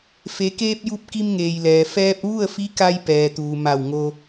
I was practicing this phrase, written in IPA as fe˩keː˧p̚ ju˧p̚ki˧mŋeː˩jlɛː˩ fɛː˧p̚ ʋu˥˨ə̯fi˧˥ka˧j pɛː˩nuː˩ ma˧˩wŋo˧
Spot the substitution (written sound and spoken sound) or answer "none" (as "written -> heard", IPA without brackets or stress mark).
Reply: n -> t̪